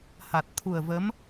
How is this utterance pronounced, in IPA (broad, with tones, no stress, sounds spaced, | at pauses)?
h a˨˩ t̚ t̪ʰ u˨˩ ə̯ v ə˧˥ m